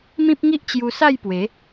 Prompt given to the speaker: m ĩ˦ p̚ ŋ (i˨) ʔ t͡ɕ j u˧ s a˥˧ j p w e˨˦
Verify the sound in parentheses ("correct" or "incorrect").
incorrect